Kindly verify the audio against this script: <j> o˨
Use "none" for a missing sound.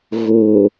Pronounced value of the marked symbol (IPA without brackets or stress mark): ɣ